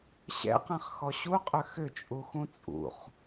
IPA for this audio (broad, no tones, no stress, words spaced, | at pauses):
ɕɛ̰qɛ̃χxɔ ɕuqʼʏ xʏt͡ʃʼuxũ t͡sʼṵχ